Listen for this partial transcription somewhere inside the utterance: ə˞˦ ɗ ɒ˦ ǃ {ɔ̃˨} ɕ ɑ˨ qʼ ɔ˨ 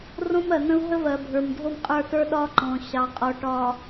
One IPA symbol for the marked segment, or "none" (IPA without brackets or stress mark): ɔ̃˨